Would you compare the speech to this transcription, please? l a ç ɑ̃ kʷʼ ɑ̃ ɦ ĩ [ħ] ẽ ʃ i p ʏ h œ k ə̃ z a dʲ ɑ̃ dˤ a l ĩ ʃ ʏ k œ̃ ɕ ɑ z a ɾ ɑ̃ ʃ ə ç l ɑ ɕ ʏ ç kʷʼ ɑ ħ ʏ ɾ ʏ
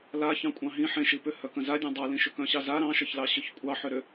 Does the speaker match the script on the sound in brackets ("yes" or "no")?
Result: yes